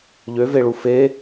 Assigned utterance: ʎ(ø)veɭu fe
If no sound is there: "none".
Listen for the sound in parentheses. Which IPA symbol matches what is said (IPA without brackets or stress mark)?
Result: ø